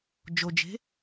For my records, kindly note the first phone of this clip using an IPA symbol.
d͡ʒ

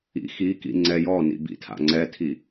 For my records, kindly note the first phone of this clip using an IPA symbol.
ḭ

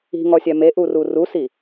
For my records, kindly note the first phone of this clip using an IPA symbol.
i̤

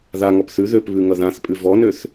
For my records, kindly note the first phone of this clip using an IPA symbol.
ð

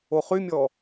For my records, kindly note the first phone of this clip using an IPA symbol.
o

